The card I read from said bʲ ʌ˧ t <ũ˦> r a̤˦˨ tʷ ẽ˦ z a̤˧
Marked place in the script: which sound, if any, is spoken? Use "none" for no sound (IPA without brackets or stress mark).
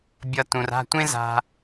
ũ˨